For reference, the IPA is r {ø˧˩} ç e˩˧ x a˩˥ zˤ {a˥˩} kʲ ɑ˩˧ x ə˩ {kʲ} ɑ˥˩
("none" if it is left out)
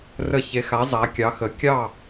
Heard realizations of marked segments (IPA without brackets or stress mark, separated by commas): ə˧˩, a˩˧, kʲ